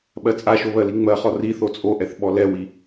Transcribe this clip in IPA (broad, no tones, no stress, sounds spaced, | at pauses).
ɓ ɜ t͡sʼ a ʃ o β ɜ l i ŋ͡m ɜ χ ɔ r i θ o t͡sʼ o ʔ ɛ θ ɓ ɔ l ɛ w i